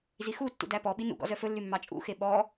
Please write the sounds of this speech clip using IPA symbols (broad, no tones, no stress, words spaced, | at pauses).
zixutːṵ dæpɔɓi nṵɡɔ̰ zœfɵlːy mːɑt͡ʃʼṵxe ɓɔ